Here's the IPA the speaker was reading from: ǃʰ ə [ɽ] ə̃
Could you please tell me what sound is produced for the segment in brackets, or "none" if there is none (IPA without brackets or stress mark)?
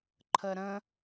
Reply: ɾ